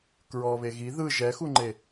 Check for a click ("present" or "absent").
present